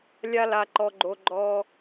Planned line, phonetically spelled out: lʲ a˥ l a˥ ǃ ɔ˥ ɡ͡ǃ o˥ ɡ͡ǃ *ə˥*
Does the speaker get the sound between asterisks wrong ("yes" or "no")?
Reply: yes